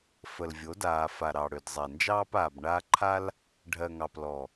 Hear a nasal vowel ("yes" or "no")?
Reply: no